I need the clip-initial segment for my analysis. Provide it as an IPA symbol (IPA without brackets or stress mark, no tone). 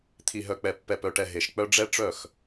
t̪ʰ